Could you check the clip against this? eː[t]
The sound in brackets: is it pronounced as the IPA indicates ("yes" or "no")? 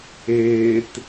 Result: yes